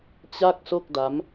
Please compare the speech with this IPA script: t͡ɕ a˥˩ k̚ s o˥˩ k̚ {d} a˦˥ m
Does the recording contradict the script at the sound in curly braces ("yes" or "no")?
no